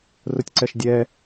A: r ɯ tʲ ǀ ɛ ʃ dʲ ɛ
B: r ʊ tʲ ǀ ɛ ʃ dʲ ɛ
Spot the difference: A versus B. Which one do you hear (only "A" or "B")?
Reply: B